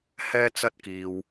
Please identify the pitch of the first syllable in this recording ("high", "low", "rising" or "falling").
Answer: high